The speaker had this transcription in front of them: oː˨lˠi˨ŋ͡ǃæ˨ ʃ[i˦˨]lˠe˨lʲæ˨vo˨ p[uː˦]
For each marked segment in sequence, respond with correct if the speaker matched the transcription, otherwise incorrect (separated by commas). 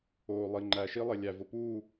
incorrect, incorrect